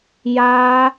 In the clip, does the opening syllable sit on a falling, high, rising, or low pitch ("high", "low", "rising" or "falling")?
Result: high